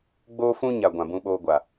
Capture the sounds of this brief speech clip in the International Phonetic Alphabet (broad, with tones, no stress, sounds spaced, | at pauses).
ɡ͡b oː˦ f ũ˦ ɲ a˨ ɡʷ ã˨ b ũ˧ ɓ oː˧ ɡʷ a˨